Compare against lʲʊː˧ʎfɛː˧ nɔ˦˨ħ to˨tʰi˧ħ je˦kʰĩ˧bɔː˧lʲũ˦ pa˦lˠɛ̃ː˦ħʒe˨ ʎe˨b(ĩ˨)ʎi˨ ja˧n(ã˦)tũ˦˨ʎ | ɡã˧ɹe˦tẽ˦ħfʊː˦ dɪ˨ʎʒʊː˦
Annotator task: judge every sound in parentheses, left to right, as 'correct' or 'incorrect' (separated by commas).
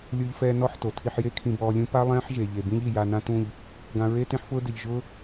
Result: incorrect, correct